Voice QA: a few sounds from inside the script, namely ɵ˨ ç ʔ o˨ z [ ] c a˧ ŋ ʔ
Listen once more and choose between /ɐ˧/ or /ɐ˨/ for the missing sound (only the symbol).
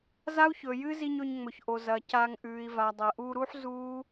ɐ˨